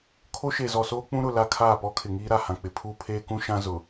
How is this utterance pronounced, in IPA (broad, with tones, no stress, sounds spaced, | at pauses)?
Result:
kʰ o˦ ʃ e˨ z ɔ˨ s oː˦ k͡p ũ˦ ɾ ʊ˨ l a˦ kʰ aː˦˨ p ɔ˦ kʰ ɪ˨ ŋ iː˦ ɾ a˨ h ã˨ k͡p ɪ˨ pʰ uː˦ pʰ eː˦ k ũ˦ ʃ ã˦ z ʊ˨